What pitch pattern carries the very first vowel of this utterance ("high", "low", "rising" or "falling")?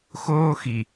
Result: high